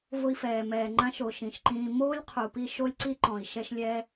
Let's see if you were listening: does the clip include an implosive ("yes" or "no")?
no